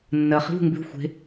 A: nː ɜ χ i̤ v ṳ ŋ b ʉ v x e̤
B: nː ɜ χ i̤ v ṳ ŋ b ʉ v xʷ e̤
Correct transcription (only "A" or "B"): B